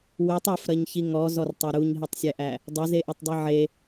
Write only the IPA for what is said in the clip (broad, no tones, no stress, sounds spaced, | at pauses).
w e tˤ e f ɾ ɐ ɲ ç i ŋ ɔ z ɔ r tˤ ɐ ɾ u ɲ ɦ i tˤ sʲ æ ʔ æ | dˤ ɐ z e ʔ ɘ tˤ dˤ i ʕ e